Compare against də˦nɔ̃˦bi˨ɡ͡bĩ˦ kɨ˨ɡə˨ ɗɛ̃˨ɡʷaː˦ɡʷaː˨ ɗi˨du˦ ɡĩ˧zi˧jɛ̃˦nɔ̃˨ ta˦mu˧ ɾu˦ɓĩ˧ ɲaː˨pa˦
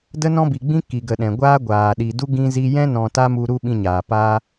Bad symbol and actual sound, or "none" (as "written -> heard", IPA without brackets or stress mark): ɨ˨ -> i˨